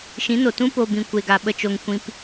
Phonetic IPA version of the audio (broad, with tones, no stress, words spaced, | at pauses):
ʃĩ˨˦no˨ tũ˦po˧ bĩ˧kʷe˧ɡa˧ ɓə˦t͡ʃo˧ŋ kʷĩ˦p